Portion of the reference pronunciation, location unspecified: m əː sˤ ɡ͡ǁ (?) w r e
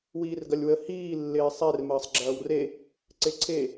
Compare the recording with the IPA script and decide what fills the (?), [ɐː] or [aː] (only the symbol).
ɐː